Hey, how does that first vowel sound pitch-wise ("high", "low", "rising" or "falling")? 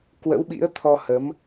rising